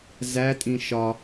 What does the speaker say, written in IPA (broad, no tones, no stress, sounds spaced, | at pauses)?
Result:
z æ tʼ ĩ ʃ ɒ